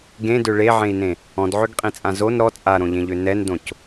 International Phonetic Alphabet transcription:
ɡ ẽ d ø ɭ e ʕ ẽ i̯ n ẽ | ɔ̃ d ʕ ø ɡ qʼ ĩ t͡sʼ ã z o n ɾ ɔ t͡sʼ a ɾ õ ʎ ẽ ʎ ø n ɛ n d õ c

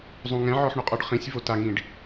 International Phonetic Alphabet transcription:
zˤ ũ ŋ ɛ̃ ʕ ɔ ħ ɳ ʊ qʼ ɔ ɖ χ ĩ sʲ v o t a ŋ ĩ ɖ

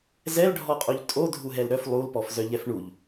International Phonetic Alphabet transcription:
z ɛ l ɖʱ ɔ qʼ o ʎ tʼ o dʱ u ɦ ɛ l ɾ œ f lˠ u l p ɔ f z œ ʎ ɛ f ɳ u ʎ

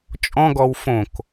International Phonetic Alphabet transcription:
t͡ʃʼ ɔ̃ ɡ ɔ w f õ k

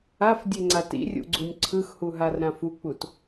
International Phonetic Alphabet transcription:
a f dʲ e ŋ͡ǀ a t ḭ rʲ ṵ ɡ͡ǀ u nʲ ǀʰ ɯ x h u ɦ a r ɾ ã f u k͡p u t

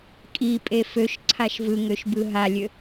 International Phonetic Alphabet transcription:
kʼ i pʼ e f ø ʃ ǀʰ a ʃ v ɯ ŋ ø ʃ b ɯ ɦ a lʲ ø

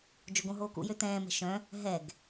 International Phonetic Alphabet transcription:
d͡ʒ o ɡ õ ɦ oː k ṵ j ø t ɛ̃ː m ɛ̤ ʃ œ̃ | ɦ ɛ ɡ

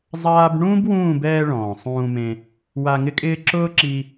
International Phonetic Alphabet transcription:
zˤ aː˦ b ɳ ũː˦ b w ũː˦˨ b ɛː˧ ɭ ɔ̃ː˨ sˤ ũː˧ m ẽ˧ | w a˧ ŋ ɪ˦ kʼ ɪː˦ ǁ ʊː˦ ǁ i˧

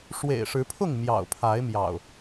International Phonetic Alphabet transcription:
ʂ w ḛ˨˩ ɪ̯ ʂ ɻ̩˨˦ pʰ ʊ˥˨ ŋ m j ɑ̰˨˩ ʊ̯ pʰ a˨˦ ɪ̯ m j ɑ̰˨˩ ʊ̯

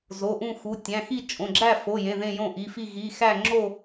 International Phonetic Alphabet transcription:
z o˩˧˩ ʔ ũ˥˨ x u˩˧˩ tʲ æ̃˩˧˩ x i˥˨ t͡ʃʼ õ˩˧˩ ɡ͡ǁ æ˥˨ f o˩˧˩ j ẽ˩˧˩ ð ẽ˥˨ j õ˥˨ ʔ i˩˧˩ f i˥˨ ɣ i˩˧˩ x æ˥˨ ŋ͡ǁ o˥˨

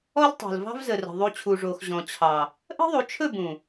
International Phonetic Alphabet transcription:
ɔ˦ l tˤ o̤˨ l v ɑ̤˦ v z ə˨ r ə̤˨ ðˤ u˧ t͡ɕʰ u˨ ʐ o˨ x ʑ ɔ̃˨ t͡ɕʰ ɑ˨ | ʔ ə̤˦ ðˤ u˨˦ t͡ʃʰ ɵ˦˨ b ũ˨

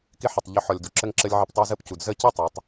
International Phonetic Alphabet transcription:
k ɪ˦ ħ ə˨ tˤ ʎ ʏ˧ ħ ɔ˨ lʲ d u˨ ǁ ə˦ ŋ ǁ ə˦ lʲ ʕ ɪ˧ p tˤ y˧ z ə˦ p c u˨ d z ə˦˨ c i˦ tˤ ɛ˨˦ tˤ

